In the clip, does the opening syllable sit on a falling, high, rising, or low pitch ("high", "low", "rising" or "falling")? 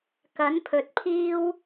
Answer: rising